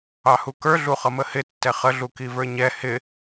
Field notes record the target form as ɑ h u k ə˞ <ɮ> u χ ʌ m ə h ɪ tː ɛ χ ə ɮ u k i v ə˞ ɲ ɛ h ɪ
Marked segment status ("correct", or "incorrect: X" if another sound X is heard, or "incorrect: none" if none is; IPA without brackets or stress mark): correct